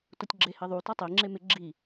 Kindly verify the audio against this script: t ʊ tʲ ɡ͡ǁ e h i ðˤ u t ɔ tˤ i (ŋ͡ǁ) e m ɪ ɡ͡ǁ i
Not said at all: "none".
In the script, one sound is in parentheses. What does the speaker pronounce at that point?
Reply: ŋ͡ǁ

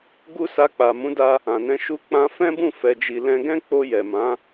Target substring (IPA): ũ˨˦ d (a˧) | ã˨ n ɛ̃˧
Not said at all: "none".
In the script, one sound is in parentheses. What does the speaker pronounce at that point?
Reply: a˧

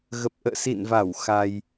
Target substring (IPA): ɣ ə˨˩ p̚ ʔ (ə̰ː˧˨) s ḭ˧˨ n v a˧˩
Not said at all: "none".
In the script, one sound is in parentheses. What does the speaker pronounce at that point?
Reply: ə̰ː˧˨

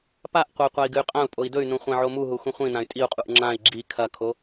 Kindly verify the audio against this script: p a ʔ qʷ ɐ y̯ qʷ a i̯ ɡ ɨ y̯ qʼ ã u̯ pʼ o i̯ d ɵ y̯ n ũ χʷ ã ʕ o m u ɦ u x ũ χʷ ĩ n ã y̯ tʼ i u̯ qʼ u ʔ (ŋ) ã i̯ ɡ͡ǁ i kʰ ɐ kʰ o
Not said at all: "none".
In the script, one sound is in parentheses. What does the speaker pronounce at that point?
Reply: ŋ͡ǁ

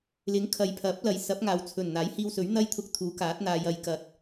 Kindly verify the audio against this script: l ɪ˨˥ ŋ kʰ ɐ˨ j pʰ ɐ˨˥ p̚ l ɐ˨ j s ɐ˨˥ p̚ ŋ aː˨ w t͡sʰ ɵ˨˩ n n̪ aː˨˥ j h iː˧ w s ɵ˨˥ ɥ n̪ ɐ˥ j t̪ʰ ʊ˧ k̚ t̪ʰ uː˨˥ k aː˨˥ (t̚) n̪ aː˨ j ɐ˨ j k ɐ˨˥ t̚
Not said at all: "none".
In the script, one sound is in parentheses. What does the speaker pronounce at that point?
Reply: t̚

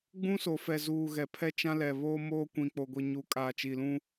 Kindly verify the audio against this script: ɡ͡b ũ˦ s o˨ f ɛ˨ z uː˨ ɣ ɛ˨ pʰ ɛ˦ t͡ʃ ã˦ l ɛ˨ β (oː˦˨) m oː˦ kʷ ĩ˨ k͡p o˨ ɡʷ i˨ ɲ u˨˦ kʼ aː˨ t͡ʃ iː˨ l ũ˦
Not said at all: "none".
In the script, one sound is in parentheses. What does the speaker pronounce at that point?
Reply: oː˦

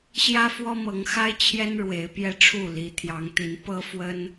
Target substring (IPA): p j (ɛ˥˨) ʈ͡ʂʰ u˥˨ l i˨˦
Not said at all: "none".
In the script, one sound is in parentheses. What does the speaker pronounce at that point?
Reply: ɛ˦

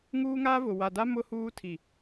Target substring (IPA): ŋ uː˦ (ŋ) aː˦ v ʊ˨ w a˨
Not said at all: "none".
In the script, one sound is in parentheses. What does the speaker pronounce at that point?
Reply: ŋ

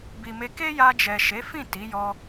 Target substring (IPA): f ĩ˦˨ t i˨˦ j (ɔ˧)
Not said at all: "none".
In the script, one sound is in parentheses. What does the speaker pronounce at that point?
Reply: ɔ˧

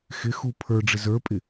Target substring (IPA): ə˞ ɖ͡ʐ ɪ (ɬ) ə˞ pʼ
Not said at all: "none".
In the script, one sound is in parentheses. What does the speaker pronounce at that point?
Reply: z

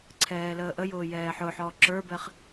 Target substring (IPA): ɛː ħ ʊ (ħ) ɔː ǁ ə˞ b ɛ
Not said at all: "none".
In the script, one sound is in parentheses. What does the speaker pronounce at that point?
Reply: ħ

